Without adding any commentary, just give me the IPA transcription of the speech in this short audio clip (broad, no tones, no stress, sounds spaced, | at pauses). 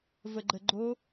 v ə ɡ͡ǃ ə ɡ͡ǃ o